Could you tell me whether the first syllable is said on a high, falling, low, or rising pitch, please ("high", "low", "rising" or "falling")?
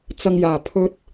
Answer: high